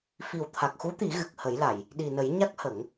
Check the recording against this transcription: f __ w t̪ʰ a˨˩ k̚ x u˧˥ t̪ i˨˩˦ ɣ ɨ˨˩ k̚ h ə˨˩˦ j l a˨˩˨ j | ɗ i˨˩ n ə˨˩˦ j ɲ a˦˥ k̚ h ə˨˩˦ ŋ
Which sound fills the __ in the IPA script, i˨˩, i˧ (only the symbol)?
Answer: i˨˩